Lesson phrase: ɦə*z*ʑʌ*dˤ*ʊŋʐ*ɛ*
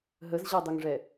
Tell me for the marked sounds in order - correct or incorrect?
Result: correct, correct, correct

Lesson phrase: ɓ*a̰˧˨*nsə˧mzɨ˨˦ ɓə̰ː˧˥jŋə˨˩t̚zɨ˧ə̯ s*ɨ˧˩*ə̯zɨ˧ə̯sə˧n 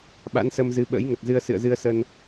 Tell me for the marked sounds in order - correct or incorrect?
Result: incorrect, incorrect

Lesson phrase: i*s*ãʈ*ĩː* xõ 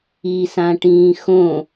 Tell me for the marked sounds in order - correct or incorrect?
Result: correct, correct

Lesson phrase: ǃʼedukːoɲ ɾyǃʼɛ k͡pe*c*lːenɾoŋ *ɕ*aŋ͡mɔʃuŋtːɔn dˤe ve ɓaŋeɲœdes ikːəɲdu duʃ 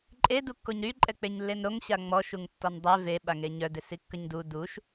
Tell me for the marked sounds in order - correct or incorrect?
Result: incorrect, correct

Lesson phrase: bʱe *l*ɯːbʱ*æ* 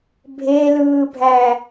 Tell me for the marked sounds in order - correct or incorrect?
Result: correct, correct

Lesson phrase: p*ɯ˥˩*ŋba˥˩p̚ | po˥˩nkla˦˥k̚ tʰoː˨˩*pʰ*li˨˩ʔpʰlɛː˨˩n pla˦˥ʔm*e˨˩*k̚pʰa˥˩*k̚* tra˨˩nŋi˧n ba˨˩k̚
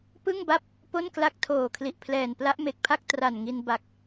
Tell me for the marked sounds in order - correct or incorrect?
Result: correct, incorrect, correct, correct

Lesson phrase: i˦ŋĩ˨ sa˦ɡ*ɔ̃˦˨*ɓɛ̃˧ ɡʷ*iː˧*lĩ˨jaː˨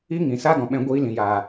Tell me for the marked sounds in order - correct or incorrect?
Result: incorrect, correct

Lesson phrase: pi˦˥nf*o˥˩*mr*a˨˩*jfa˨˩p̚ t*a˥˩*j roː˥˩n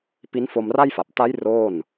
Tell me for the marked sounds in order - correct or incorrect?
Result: incorrect, incorrect, incorrect

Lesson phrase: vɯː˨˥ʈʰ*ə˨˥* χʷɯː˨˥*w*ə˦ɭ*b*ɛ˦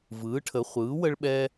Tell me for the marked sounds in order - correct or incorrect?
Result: correct, correct, incorrect

